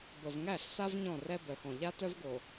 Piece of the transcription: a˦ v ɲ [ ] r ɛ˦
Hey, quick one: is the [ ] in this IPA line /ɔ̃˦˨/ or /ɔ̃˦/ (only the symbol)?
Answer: ɔ̃˦˨